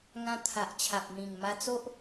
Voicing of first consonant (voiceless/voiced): voiced